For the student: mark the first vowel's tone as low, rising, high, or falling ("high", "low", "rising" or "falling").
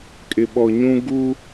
low